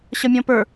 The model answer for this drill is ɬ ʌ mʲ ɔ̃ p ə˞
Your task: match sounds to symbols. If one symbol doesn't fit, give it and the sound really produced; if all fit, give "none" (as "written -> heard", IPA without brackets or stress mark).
ɬ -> ɕ